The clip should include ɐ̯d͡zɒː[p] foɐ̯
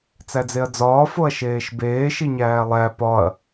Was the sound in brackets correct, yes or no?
no